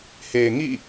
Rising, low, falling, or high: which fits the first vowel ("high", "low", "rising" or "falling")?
low